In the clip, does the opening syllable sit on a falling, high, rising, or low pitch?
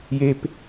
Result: high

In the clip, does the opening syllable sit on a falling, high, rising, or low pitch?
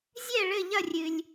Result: falling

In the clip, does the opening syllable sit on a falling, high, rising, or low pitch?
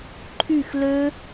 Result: falling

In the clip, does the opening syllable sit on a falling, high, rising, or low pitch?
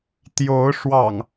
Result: rising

